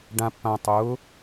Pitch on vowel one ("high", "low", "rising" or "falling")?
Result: low